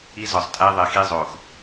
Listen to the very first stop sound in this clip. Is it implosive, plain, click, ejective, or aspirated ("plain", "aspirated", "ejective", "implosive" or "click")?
ejective